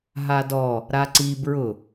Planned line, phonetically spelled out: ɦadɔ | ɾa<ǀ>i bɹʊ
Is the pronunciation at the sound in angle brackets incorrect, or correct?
correct